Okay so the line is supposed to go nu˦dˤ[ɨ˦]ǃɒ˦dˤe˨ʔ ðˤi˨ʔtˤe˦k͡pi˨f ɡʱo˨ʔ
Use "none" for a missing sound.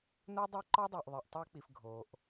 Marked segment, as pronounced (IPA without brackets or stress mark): e˦